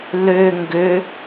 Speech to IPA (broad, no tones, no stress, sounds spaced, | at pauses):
l ø ŋ ɡ ø